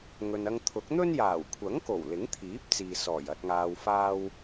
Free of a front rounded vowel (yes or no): yes